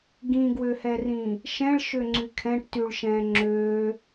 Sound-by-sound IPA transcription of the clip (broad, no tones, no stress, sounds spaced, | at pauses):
ɡ ĩ ɡ w ø h ɛ r ĩ | ʃ ɛ̃ ɭ ʃ ø ŋ͡ǀ y kʰ ɛ̃ ʈ t y ɭ ʃ ɛ̃ː ŋ͡ǁ øː